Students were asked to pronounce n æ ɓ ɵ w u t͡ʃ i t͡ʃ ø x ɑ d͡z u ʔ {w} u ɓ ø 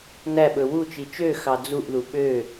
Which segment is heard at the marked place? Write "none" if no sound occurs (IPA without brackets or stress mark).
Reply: ð